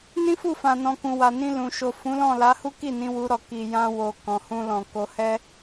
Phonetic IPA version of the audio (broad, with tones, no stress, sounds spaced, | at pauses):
n ĩ˦ f u˦˨ f ã˨ n ɔ̃˨ k ũ˨ w a˨ n ĩ˧ l ũ˨ ʃ o˨ f ũ˨˦ l ɔ̃˦˨ l a˨˦ h u˦ k i˦˨ n ĩ˧ w u˧ ɾ ɔ˨ k i˨ j ã˧ w o˨ k ɔ̃˨ h ũ˧ l ɔ̃˨ k o˧ h ɛ˦